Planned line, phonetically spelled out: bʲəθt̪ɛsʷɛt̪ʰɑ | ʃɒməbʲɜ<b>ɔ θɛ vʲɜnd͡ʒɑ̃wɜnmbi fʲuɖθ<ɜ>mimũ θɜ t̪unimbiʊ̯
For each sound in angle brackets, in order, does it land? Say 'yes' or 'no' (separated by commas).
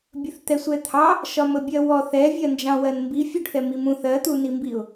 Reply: no, no